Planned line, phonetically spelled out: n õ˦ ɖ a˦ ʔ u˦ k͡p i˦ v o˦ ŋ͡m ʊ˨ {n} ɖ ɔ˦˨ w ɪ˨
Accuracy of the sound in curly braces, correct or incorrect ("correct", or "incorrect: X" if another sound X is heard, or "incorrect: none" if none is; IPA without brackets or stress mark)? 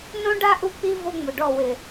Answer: incorrect: none